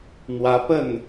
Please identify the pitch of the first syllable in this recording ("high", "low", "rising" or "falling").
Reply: rising